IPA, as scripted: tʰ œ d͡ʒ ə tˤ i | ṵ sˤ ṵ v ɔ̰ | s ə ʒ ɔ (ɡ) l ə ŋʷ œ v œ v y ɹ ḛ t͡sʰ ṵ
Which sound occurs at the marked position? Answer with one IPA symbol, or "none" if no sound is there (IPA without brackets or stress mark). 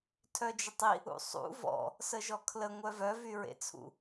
kʰ